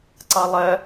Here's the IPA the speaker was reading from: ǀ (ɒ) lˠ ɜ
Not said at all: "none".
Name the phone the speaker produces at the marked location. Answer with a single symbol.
ɑ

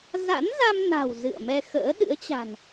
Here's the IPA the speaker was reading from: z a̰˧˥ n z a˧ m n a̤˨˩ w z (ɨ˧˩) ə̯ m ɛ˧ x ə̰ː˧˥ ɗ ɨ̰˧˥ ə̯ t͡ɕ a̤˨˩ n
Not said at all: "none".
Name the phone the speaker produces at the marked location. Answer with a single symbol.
ɨ̰˧˨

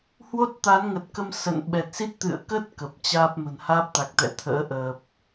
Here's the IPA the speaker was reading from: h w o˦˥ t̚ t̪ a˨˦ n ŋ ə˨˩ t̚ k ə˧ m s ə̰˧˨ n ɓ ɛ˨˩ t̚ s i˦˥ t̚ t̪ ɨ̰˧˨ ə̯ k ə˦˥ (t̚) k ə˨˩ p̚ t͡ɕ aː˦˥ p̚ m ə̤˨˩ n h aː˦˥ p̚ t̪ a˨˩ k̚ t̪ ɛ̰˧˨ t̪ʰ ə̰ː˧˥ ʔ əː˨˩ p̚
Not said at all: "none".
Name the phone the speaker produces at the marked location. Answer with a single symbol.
t̚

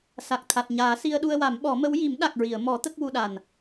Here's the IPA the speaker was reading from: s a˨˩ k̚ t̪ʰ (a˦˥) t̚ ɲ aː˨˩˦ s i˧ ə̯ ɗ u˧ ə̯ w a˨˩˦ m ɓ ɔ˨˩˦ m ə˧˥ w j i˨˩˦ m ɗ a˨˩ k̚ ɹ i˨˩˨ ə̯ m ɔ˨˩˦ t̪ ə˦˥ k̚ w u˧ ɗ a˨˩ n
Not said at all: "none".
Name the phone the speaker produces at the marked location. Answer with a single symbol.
a˨˩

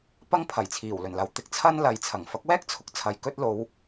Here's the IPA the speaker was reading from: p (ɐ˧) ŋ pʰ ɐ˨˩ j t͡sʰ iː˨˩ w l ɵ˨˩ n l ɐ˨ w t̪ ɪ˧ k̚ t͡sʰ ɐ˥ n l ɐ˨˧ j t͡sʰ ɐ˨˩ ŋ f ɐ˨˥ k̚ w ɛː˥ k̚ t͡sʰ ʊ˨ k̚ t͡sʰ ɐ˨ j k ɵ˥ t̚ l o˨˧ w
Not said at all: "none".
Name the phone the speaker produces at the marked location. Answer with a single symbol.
ɐ˥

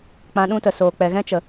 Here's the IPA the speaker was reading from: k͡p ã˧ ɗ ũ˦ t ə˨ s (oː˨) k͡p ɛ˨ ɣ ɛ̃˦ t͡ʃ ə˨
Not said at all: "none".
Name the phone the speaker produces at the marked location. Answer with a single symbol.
oː˨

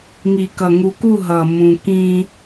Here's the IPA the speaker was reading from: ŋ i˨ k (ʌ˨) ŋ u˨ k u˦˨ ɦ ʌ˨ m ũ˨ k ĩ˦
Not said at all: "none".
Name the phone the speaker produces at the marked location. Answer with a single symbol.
ʌ˨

